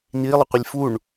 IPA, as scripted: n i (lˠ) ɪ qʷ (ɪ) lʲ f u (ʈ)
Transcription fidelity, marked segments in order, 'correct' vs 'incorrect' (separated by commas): correct, correct, incorrect